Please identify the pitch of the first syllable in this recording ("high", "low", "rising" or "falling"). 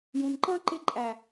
low